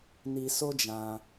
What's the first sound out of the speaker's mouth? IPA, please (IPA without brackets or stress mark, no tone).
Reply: n